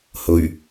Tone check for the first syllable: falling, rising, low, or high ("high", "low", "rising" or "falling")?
low